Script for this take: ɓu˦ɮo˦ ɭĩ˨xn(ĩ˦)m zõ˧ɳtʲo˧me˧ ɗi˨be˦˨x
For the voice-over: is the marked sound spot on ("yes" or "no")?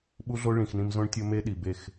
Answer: no